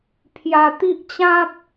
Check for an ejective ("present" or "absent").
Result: absent